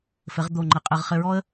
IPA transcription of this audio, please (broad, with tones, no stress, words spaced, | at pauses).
fɘ˩˧ʁd̪o˨˩ŋ͡ǃɘ˨˩ qʼɘ˨˩ʁχɘ˧ɹɔ˥ə̯